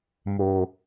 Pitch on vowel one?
low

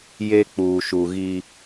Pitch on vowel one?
high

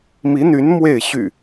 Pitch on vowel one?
rising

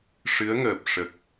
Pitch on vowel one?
rising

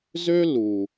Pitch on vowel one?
high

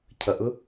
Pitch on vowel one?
low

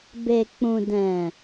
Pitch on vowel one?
low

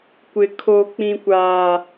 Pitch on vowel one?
low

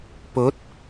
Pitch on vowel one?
rising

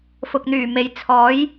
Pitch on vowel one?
low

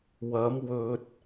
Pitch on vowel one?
rising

